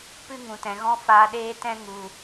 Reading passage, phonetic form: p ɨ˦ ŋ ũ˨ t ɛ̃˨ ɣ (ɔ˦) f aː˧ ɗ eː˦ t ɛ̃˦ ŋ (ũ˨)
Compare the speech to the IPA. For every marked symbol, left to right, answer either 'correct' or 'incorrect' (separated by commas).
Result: incorrect, incorrect